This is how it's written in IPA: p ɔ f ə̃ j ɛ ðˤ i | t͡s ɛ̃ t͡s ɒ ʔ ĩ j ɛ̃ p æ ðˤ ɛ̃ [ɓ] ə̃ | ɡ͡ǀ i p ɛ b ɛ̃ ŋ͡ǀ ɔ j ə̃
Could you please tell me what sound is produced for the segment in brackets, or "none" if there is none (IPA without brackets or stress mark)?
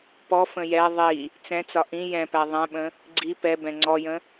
ɓ